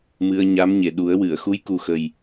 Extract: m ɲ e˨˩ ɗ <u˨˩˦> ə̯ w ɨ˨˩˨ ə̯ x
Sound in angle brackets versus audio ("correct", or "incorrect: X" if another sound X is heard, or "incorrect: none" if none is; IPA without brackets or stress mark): correct